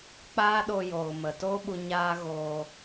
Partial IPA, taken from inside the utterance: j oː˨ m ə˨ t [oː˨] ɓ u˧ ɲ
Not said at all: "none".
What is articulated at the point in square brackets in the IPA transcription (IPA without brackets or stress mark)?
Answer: oː˦